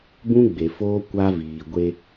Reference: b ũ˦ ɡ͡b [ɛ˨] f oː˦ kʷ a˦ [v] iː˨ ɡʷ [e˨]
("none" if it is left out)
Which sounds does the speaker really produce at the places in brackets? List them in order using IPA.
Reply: e˨, v, e˦

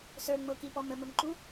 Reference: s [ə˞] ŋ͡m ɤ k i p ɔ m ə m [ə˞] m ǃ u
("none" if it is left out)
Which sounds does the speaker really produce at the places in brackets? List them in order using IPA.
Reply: ə˞, ə

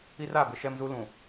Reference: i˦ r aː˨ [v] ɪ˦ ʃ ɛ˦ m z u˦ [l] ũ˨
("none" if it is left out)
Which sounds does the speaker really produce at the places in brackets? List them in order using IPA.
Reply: b, l

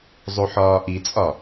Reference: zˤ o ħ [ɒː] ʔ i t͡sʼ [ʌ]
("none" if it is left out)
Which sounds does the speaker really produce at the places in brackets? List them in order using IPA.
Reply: ɒː, ɒ

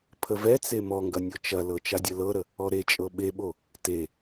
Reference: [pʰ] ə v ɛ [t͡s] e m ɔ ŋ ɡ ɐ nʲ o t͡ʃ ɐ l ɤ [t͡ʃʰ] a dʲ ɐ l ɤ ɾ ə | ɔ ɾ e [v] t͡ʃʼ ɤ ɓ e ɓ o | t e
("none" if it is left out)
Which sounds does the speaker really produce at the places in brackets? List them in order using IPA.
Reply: pʰ, t͡s, t͡ʃ, none

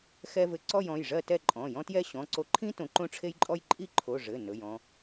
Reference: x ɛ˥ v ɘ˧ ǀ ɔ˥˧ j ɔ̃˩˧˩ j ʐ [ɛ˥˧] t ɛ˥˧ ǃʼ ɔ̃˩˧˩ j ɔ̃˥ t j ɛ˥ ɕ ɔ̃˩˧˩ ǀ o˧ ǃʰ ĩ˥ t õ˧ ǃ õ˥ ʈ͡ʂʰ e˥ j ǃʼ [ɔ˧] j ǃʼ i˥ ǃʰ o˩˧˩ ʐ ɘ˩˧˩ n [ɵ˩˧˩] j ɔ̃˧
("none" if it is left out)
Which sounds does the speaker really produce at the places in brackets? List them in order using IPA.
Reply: ɜ˥˧, ɔ˥, ɵ˩˧˩

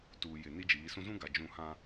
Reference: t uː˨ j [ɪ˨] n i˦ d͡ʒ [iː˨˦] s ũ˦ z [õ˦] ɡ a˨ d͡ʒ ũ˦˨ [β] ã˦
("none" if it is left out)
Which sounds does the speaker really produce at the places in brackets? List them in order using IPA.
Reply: ɪ˨, iː˨˦, ũ˦, h

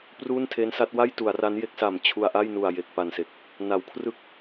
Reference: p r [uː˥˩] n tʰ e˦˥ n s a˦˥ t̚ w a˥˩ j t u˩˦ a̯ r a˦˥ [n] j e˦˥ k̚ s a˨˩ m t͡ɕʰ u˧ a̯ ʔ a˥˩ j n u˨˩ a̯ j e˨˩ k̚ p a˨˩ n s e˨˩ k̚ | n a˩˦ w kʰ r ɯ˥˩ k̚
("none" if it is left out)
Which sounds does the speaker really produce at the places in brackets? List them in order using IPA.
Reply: uː˥˩, n

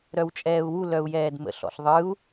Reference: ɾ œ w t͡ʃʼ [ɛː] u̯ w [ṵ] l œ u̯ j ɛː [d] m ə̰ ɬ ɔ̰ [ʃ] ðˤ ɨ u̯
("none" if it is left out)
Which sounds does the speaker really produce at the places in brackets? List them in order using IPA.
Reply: ɛː, u, d, ɬ

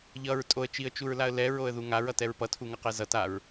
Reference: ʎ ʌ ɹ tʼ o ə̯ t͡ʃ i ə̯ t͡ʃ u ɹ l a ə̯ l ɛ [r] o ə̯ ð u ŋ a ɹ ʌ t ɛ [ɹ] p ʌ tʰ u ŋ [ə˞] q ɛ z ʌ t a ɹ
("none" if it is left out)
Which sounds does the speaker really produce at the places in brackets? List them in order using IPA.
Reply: ɹ, ɹ, ʌ

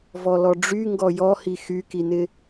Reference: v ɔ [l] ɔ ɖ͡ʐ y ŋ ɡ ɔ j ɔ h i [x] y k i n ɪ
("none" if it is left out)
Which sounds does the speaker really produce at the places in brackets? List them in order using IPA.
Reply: l, x

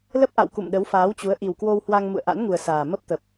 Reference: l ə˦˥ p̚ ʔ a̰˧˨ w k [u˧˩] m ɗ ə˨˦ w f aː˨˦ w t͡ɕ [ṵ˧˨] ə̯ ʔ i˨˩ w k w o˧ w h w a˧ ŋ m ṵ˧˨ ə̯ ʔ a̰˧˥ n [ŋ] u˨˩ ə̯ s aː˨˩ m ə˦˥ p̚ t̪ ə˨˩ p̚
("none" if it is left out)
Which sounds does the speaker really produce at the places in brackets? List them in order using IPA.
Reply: ṵ˧˨, u˨˦, ŋ

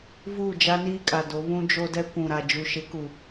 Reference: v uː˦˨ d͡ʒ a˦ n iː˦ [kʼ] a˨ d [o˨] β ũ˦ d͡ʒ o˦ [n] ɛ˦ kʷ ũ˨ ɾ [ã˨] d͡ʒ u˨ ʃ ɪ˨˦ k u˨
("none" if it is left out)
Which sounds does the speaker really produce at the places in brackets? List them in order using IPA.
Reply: kʼ, o˨˦, d, a˨

